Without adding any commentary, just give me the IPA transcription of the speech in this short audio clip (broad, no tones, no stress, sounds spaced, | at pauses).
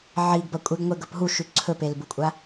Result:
ʕ i ɡ b ɐ kʷʼ e ɡ ŋʷ e ɡ ɵ p ɦ u ʃ ʉ ǀʰ ɵ p e l b u kʷʼ a